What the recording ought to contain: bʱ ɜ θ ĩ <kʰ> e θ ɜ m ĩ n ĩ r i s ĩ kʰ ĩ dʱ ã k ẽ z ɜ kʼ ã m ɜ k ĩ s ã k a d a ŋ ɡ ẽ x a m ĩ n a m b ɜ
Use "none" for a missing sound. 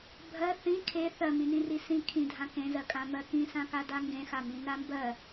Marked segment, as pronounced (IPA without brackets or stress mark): kʰ